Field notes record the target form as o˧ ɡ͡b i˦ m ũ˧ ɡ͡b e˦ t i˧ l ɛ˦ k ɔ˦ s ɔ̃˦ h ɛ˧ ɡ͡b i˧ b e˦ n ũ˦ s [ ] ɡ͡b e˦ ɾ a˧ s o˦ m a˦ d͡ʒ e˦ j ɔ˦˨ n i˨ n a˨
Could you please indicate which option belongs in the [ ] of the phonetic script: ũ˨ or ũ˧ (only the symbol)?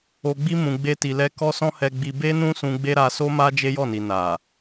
ũ˧